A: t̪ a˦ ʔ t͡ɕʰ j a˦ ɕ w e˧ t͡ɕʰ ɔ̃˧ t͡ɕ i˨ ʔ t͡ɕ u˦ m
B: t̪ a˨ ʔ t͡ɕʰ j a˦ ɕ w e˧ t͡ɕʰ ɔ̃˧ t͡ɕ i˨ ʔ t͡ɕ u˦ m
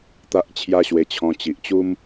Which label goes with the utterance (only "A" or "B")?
A